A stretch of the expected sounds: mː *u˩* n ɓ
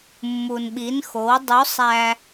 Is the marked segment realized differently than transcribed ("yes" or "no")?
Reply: no